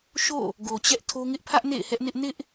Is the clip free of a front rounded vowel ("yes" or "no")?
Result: yes